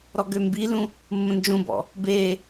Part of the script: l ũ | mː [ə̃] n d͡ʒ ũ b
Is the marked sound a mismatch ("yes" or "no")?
no